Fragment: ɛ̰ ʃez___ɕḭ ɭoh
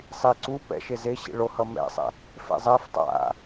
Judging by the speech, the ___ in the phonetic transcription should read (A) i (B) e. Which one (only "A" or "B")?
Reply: B